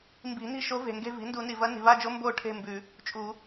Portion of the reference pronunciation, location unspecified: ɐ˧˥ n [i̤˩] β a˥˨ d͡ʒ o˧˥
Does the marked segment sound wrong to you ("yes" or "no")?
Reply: no